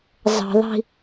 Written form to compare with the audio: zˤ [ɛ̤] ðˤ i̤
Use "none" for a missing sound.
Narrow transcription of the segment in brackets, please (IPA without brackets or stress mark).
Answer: ə̤